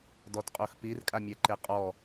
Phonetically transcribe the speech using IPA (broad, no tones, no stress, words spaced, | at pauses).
dɔtqʼoxpir kʼamʲɛǃeqʼɔ